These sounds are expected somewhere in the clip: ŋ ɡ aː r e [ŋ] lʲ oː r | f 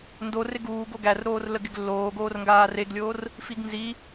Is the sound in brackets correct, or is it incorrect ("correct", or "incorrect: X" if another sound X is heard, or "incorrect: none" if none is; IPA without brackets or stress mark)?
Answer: incorrect: ɡ